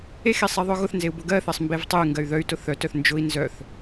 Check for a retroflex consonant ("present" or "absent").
absent